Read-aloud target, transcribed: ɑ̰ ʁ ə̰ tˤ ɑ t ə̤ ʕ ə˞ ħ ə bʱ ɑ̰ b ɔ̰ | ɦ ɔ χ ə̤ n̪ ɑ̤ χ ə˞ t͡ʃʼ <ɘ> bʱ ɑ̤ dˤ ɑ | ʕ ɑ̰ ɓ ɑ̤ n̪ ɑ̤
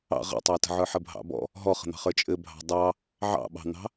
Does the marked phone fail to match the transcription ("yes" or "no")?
no